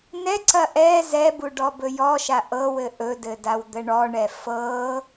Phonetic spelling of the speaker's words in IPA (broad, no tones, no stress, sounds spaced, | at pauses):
n ɛ ǀ ɐ ʔ ɛ z ɛ b u ɖ ɔ b ɵ j ɔ ʃ a ʔ ɤ w ɘ ʔ ɵ d ɘ d a w d̪ ə ɳ ɔ ɳ ɛ f ɤ